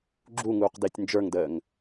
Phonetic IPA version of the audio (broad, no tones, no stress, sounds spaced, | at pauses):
ɡ͡ǁ u ŋ uː q d ɪː tʲ n d͡ʒ ə˞ ŋ d əː ŋ